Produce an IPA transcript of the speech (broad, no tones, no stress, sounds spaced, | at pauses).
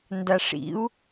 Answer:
n d a ʂ ḭ u̯